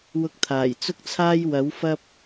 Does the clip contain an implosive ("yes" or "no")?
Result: no